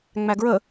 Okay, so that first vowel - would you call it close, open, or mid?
open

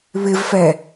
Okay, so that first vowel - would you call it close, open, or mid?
close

